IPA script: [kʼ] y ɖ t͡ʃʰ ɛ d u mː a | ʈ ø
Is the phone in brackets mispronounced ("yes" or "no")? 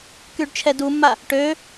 yes